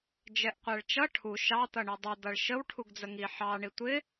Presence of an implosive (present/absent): absent